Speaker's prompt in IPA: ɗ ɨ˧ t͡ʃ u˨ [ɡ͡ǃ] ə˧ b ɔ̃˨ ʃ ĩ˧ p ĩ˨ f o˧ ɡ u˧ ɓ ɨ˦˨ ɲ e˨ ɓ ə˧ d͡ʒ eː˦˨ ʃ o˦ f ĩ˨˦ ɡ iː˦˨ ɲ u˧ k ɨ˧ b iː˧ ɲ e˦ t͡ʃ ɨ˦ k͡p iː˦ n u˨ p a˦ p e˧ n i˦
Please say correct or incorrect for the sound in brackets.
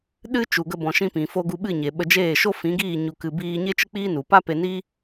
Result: incorrect